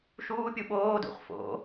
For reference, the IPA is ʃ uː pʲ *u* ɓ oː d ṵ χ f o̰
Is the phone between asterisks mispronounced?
no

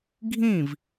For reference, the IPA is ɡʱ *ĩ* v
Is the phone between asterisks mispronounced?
no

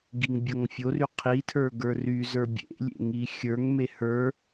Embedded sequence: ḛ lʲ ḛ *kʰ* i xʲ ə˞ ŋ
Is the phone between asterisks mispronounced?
yes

